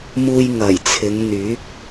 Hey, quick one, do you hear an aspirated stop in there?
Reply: yes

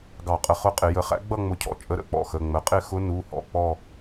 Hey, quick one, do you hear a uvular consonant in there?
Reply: yes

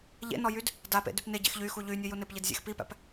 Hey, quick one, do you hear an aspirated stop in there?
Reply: no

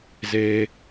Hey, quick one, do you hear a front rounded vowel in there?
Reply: no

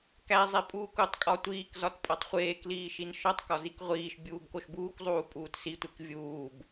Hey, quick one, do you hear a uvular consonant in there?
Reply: yes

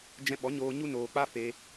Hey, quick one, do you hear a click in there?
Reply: no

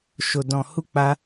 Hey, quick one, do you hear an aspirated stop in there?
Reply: no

